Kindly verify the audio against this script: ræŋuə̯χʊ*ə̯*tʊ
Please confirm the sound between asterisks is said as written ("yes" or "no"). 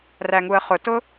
no